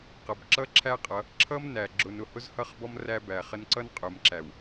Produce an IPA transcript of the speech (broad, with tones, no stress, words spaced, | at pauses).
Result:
qʌ˨bǁʌ˦ǁʰæ˦qʼʌ˨˦ | ǁʰʌ˦mnæ˨ ɡ͡ǁʊ˨nʊ˨ hʊ˦zhʌ˦˨χbɔ˦m ræ˦bæ˨χə˦n ǀʌ˦nqʼʊ˨mǁæ˨w